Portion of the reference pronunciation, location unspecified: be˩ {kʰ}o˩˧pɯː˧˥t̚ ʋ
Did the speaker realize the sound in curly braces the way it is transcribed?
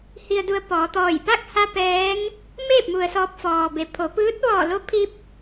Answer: no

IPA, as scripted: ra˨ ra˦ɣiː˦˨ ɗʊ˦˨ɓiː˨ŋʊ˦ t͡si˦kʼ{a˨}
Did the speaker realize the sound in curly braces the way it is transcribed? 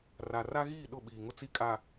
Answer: yes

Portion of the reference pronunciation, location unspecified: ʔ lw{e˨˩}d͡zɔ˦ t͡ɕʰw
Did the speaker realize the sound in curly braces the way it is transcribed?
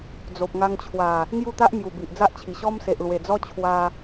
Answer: yes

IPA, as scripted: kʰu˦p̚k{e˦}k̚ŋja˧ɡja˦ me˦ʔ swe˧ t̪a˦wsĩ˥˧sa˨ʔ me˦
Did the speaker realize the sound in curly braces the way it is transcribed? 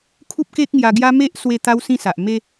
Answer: yes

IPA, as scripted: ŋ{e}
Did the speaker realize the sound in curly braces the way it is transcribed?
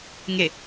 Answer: yes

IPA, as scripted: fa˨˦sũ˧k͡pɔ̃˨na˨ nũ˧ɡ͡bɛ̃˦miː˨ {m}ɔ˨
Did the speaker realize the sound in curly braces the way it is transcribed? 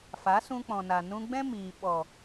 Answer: no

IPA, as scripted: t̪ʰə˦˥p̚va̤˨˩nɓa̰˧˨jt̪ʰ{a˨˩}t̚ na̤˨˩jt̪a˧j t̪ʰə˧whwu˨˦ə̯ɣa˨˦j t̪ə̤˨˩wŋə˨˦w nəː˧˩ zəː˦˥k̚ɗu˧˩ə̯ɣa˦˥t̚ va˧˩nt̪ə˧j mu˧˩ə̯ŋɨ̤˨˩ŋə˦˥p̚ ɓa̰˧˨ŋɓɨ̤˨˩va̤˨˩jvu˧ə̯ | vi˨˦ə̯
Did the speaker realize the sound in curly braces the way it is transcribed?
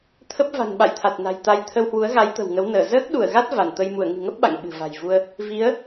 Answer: yes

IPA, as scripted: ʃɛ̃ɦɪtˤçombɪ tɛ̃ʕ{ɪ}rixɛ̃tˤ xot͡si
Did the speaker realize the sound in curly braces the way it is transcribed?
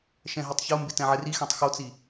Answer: yes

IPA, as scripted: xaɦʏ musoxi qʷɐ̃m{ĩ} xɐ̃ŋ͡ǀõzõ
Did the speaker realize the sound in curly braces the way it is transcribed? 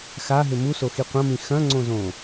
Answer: yes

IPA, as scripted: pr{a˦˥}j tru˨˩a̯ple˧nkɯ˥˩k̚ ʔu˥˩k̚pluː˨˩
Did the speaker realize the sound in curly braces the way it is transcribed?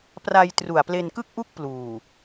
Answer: no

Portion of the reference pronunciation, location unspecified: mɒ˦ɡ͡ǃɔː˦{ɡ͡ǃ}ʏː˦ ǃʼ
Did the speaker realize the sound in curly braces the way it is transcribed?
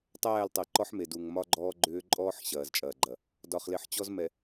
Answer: yes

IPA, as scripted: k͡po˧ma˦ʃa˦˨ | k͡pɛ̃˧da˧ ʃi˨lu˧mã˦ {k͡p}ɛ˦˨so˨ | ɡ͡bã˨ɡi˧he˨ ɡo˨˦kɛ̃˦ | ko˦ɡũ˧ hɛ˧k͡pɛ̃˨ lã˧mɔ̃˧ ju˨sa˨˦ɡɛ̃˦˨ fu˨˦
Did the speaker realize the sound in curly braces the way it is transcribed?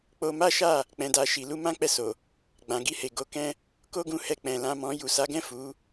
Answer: yes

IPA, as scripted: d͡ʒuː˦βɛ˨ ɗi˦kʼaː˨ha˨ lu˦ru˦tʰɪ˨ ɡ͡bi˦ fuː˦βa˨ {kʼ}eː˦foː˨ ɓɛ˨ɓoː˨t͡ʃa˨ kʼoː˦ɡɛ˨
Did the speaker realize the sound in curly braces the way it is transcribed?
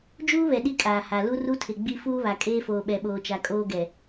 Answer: yes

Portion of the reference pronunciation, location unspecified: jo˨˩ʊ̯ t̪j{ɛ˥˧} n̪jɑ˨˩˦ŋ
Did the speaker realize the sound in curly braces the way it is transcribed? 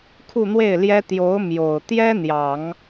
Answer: no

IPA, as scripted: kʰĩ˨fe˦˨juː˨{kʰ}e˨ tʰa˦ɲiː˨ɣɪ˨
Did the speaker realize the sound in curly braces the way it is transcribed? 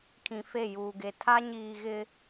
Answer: no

